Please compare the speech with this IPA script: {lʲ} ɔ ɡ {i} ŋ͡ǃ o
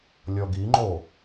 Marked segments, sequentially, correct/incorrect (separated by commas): correct, correct